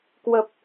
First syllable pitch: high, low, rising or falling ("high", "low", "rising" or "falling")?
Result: low